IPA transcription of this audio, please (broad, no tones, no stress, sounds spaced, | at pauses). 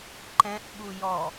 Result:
ǃ ɛ̃ ʔ ɓ u j ɔ